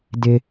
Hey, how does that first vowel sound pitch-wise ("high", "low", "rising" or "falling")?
high